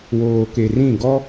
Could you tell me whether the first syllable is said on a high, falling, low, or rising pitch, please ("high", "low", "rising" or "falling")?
low